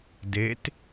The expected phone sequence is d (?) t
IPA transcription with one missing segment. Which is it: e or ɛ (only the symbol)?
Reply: e